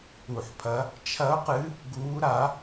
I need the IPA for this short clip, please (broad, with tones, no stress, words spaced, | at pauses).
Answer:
u˧˩˧ħpʰɐ˧˥ | t͡ʃʰɐ˧˥ʊ̯qɨ˧˥ | ɡuː˧˥ɾa˧˥